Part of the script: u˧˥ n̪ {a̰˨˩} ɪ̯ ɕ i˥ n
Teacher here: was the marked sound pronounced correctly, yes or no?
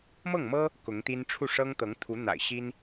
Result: yes